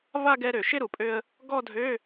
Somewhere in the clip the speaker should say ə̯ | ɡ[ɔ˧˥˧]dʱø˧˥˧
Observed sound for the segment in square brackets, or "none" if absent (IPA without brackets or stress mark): ɔ˥˧